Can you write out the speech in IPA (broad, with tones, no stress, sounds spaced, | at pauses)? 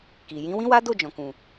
k i˨ j ĩ˨˦ w ĩ˦ w a˦ d o˦˨ d͡ʒ ɔ̃˨ k ũ˨